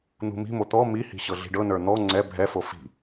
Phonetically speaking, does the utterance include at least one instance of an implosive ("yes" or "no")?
no